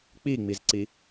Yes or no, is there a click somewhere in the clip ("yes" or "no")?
yes